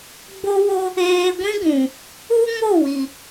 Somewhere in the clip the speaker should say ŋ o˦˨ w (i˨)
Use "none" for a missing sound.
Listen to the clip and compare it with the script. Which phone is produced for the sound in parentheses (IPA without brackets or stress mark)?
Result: i˨